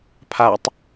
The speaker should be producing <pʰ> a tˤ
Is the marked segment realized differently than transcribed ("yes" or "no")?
no